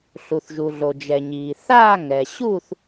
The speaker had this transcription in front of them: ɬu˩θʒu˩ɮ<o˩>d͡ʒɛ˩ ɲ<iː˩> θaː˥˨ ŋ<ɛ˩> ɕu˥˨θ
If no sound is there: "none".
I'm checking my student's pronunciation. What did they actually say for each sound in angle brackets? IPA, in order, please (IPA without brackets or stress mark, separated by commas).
o˩, iː˩, ɛ˩